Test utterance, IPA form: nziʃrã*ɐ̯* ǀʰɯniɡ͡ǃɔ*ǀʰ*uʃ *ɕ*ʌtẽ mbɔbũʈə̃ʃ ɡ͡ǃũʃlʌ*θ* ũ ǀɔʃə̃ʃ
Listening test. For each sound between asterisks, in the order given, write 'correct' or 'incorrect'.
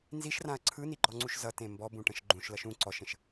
correct, incorrect, incorrect, incorrect

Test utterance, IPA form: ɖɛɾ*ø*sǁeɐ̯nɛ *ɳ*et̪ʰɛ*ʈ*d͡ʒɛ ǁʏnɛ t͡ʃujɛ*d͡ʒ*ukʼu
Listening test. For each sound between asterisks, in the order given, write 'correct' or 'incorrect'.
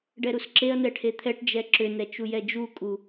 incorrect, incorrect, correct, correct

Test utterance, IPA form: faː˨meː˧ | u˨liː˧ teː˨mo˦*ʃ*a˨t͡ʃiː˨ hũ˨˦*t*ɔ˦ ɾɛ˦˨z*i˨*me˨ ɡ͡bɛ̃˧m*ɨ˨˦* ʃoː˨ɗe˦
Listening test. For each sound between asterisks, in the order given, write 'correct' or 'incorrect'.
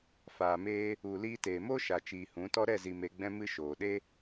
correct, correct, correct, incorrect

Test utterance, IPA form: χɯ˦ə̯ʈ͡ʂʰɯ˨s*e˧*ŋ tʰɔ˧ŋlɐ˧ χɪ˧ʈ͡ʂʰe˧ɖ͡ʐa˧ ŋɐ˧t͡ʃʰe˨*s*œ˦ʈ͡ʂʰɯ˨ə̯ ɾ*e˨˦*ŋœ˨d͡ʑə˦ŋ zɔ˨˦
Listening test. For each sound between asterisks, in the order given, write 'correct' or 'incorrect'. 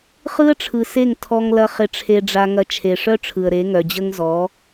incorrect, incorrect, correct

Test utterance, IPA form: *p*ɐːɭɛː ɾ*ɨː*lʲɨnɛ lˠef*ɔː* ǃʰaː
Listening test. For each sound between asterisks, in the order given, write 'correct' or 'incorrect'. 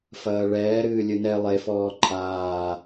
incorrect, correct, correct

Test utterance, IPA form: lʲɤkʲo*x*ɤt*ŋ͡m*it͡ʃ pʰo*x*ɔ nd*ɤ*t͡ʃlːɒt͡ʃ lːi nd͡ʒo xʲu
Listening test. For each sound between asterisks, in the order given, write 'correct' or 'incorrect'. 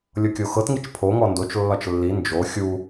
correct, incorrect, incorrect, incorrect

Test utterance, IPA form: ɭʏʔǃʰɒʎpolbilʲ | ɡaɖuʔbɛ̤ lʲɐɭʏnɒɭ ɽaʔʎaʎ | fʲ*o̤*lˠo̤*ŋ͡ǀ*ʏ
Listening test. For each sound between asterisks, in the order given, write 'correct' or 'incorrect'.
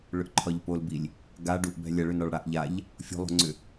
correct, correct

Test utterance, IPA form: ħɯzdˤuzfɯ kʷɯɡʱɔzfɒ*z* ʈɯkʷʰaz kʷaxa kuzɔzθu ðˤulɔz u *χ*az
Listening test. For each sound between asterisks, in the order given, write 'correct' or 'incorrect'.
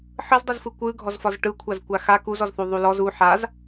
correct, incorrect

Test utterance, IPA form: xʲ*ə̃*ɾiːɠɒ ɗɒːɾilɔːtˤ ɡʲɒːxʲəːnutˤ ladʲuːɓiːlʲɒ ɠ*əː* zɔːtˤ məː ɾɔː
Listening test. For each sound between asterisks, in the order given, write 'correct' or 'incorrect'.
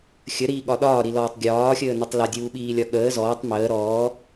incorrect, correct

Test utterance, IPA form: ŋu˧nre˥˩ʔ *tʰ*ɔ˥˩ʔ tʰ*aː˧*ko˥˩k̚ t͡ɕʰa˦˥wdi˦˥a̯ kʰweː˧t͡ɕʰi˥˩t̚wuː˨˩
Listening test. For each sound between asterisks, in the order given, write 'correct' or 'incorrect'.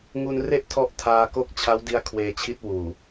correct, correct

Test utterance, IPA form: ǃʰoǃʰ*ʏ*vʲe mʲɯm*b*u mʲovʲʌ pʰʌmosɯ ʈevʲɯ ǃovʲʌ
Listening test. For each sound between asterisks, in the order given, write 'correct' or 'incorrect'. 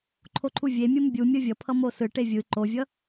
incorrect, incorrect

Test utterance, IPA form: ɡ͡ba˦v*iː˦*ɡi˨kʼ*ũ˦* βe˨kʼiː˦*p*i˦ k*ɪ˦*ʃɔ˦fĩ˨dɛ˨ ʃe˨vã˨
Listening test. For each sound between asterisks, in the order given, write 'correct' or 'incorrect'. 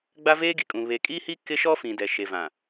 incorrect, incorrect, incorrect, correct

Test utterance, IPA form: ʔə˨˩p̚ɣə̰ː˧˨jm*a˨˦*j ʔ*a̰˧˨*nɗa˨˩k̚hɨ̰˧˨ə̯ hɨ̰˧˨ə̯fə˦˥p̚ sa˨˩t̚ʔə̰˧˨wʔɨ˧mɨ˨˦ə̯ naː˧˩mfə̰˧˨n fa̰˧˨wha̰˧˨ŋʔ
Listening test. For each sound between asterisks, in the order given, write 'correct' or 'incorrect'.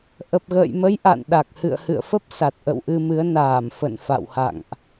incorrect, correct

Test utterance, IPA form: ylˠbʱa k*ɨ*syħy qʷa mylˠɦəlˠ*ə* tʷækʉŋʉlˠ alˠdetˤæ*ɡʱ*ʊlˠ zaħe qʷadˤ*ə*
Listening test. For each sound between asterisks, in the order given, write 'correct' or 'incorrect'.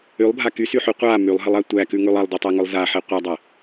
incorrect, incorrect, incorrect, incorrect

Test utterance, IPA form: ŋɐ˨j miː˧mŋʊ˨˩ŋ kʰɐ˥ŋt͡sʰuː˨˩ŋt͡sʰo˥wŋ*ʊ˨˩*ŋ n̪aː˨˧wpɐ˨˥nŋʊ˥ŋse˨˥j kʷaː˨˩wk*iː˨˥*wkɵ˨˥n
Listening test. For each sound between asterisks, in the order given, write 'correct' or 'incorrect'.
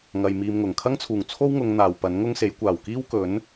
incorrect, incorrect

